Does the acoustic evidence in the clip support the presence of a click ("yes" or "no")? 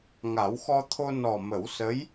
no